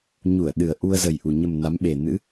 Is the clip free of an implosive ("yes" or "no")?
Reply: no